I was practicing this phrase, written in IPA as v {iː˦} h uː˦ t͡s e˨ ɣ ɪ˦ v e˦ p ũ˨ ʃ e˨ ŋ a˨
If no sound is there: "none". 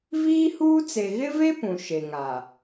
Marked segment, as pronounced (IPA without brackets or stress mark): iː˦